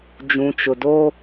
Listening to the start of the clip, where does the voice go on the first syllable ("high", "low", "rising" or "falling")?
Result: low